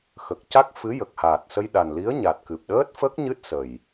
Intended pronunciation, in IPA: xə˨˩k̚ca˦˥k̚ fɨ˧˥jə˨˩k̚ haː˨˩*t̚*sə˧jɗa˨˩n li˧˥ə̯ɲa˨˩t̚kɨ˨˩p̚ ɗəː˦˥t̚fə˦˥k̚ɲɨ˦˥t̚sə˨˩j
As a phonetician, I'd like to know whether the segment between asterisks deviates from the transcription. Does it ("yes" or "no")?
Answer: no